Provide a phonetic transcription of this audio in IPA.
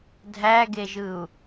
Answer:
dʱ æ ɡ e ʒ ɯ u̯

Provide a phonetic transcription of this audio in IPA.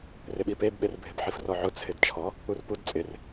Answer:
r ɪ ɓ i p e b ɓ e r bʱ ɪ b ħ i f r ɔ ʕ ʊ t͡sʰ ɪ d t͡ʃʰ ɔ | u r p u d t͡sʼ ɪ r

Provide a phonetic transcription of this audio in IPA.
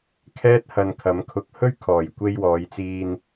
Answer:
kʰ ɛː˥ t̚ h ɐ˧ n kʰ ɐ˨˧ m kʰ ʊ˧ k̚ h ɵ˥ ɥ kʰ ɔː˨˩ j kʷ e˧ j w ɔː˨˧ j t͡s iː˧ n

